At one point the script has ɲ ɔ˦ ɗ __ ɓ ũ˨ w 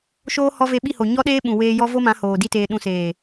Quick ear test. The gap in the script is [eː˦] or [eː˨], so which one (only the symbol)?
eː˦